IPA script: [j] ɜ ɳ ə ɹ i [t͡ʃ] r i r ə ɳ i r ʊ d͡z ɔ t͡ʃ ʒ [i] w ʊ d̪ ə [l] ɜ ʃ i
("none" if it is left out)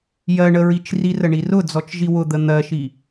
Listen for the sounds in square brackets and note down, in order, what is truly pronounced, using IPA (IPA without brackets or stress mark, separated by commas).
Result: j, t͡ʃ, i, n̪